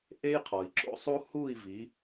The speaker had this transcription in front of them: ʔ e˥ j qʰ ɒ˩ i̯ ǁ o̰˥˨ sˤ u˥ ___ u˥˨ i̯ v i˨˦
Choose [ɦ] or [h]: h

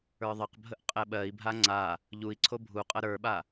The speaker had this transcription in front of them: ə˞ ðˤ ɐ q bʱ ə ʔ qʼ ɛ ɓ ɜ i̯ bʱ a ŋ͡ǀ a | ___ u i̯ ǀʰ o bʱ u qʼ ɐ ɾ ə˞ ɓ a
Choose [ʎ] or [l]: ʎ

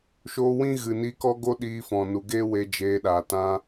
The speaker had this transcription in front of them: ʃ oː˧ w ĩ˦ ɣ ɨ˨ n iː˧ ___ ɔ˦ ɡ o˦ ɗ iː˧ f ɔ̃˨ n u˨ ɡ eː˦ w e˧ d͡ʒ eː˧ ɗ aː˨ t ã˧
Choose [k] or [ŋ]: k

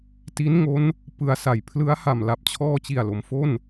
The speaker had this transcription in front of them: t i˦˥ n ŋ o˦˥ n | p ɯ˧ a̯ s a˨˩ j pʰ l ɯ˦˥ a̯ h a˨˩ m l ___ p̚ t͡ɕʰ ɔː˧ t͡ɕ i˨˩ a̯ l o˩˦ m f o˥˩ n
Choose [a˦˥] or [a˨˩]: a˨˩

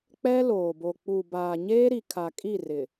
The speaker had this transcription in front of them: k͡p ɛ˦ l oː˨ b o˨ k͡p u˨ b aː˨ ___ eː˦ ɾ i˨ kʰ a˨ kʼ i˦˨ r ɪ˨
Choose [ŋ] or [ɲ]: ɲ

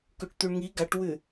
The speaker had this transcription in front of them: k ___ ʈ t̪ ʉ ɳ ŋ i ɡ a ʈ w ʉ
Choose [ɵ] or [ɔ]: ɵ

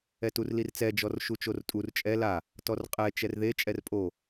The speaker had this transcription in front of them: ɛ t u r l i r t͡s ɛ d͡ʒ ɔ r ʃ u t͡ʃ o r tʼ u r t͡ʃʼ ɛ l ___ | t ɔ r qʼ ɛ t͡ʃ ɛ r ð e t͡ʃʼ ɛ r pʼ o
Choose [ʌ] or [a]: a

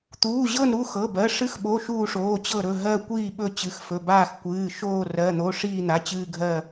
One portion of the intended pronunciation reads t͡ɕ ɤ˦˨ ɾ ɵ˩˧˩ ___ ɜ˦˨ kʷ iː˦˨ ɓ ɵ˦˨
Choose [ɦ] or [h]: ɦ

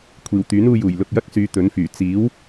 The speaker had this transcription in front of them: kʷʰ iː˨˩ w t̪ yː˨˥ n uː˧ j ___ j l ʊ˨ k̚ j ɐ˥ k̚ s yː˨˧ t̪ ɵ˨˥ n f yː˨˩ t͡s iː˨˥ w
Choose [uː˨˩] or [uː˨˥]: uː˨˩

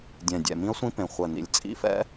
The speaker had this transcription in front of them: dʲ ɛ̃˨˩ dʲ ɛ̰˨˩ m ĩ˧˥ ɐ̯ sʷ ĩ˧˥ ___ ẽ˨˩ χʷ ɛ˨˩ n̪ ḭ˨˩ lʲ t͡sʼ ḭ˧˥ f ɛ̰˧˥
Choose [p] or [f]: p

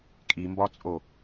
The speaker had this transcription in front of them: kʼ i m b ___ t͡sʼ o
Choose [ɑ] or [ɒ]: ɒ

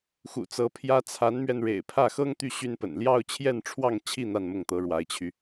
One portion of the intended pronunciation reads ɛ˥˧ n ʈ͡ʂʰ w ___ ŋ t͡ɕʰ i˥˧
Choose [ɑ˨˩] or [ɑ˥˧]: ɑ˥˧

